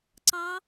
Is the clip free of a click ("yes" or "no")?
no